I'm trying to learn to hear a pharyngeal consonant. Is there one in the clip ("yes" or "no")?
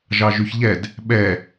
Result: no